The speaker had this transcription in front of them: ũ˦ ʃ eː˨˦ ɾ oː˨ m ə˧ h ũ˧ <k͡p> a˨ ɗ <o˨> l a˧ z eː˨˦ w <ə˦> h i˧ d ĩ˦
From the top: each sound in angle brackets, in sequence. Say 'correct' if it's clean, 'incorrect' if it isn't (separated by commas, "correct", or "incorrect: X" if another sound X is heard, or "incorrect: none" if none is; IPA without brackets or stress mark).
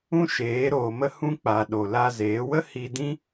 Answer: correct, correct, correct